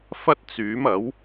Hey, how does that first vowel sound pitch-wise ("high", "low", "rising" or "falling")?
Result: high